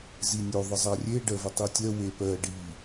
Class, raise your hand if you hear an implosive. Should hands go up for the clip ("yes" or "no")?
no